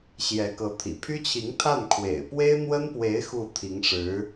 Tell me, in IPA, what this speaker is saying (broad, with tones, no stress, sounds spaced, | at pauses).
ɕ j ɛ˧˥ k ɤ˧˥ t̪ʰ ḭ˨˩ pʰ y˥ t͡ɕʰ i˧˥ ŋ t̪ʰ a˥˩ n kʰ w ḛ˨˩ ɪ̯ p w e˥ ɪ̯ n̪ w ə˥ n p w e˧˥ ɪ̯ x u˥˩ t̪ʰ i˧˥ ŋ ʂ ɻ̩˧˥